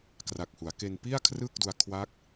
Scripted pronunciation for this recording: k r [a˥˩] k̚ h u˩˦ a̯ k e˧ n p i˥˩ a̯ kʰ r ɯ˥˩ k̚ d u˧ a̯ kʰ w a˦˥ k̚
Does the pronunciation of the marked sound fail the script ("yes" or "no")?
yes